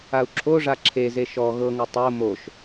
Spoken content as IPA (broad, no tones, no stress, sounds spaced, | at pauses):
a u̯ ǁʰ o ʐ a ǁʰ e z e ʃ ɔ ɣ ɤ ŋ o tˤ o m o ʃ